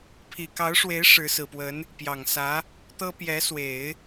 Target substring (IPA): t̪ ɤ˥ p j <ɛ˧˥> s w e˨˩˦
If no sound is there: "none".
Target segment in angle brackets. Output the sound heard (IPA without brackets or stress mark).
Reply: ɛ˧˥